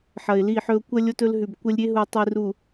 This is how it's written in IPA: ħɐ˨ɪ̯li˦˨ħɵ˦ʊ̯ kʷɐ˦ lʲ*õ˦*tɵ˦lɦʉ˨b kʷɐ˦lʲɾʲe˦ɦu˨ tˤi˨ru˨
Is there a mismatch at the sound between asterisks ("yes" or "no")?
yes